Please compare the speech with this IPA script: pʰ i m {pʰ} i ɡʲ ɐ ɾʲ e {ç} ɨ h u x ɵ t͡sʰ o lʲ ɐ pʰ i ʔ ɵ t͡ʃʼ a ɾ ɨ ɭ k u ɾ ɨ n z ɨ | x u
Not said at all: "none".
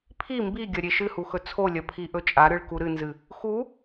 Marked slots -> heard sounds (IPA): b, ʃ

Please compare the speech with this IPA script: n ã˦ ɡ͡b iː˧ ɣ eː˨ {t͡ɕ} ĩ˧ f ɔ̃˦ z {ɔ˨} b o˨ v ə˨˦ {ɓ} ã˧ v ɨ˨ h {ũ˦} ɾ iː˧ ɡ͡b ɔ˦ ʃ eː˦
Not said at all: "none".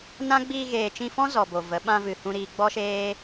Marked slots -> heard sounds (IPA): t͡ʃ, ɔ˨, ɓ, ũ˧

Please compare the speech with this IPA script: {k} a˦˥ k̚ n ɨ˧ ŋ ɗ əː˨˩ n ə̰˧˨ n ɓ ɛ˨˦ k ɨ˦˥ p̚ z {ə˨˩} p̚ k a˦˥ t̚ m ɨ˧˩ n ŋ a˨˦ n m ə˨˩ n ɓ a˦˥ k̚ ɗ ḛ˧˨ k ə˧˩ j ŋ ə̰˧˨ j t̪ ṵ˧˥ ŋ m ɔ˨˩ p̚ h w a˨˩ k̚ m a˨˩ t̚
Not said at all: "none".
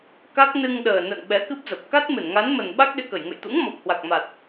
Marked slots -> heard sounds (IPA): k, ə˨˩

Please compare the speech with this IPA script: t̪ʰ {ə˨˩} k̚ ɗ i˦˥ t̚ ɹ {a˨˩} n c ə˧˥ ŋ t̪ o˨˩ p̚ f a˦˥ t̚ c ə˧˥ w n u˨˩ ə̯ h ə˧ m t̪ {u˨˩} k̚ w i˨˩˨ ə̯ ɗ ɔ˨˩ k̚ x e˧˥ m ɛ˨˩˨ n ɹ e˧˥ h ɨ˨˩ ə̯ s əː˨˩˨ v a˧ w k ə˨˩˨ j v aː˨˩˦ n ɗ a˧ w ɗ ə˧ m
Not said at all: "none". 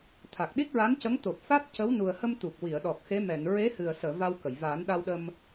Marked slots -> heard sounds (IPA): a˨˩, a˧˥, u˨˩

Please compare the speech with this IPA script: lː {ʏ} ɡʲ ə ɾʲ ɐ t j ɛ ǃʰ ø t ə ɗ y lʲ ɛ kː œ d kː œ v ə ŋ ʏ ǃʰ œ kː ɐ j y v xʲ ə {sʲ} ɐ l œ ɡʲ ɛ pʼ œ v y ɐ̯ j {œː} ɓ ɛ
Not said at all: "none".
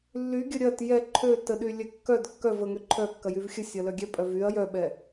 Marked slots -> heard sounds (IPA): y, sʲ, œ

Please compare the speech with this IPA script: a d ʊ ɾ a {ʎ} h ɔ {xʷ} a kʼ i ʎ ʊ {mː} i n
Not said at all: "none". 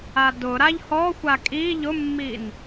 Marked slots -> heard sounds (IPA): ʎ, xʷ, mː

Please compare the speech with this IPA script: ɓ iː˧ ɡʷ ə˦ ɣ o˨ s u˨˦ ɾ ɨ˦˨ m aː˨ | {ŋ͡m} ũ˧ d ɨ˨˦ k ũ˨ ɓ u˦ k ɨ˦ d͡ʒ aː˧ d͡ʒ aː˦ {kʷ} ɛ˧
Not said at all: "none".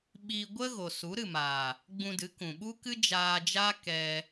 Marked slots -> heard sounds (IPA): ɡ͡b, k

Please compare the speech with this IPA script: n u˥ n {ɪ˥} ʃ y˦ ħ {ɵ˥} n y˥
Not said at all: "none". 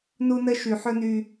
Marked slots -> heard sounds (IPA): ə˥, ɵ˥

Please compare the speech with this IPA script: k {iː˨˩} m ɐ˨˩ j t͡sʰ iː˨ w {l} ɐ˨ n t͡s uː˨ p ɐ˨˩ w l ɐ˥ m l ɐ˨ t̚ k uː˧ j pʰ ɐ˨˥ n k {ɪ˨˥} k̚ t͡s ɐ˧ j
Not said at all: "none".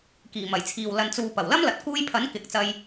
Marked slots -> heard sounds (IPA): iː˨˩, l, ɪ˨˥

